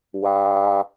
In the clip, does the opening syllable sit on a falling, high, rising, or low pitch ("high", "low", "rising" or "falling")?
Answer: low